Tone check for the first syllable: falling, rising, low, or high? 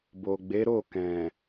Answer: low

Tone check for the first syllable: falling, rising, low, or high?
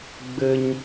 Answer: high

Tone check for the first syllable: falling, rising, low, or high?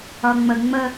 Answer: low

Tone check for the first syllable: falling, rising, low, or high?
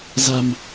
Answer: low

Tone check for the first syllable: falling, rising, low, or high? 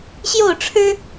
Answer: falling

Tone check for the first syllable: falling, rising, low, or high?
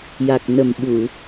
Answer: low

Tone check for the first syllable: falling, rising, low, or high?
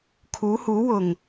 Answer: rising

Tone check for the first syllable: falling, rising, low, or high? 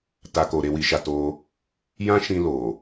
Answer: low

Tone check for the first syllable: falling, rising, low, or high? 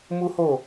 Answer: high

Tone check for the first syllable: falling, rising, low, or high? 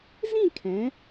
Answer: falling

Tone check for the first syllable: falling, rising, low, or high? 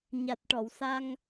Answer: low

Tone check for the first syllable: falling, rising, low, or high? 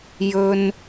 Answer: high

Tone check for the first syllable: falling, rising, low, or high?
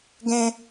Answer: high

